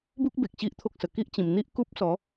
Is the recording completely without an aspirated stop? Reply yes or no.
no